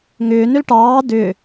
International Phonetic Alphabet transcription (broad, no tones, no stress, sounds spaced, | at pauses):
ŋ ʏː n ʏ l ʈ ɑː d ʏ